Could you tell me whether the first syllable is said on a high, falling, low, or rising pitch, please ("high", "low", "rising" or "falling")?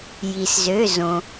low